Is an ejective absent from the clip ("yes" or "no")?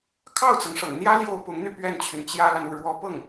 yes